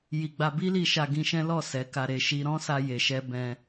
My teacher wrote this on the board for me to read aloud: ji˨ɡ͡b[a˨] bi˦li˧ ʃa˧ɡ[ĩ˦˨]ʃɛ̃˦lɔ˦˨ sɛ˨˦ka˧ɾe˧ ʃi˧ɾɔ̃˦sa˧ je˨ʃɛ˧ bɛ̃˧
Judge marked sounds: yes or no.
no, no

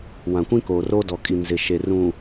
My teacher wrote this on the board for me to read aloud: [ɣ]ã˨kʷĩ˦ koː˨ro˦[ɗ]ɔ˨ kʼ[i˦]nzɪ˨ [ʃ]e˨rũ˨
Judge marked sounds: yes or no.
no, no, no, yes

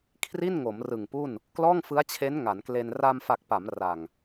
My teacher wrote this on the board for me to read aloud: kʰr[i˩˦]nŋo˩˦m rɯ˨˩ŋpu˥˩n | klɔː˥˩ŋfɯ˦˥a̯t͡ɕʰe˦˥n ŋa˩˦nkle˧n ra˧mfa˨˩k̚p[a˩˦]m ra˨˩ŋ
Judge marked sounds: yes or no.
no, yes

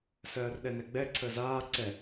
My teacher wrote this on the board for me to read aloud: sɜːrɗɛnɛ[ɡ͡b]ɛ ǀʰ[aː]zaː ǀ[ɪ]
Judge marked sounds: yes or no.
yes, no, no

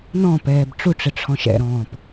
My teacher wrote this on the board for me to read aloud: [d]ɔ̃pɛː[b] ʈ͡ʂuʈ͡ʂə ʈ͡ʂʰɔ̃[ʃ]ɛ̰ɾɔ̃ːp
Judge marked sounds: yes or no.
no, yes, yes

